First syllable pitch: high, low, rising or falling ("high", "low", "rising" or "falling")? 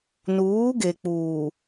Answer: rising